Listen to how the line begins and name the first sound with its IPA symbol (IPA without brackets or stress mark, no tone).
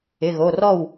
ɪ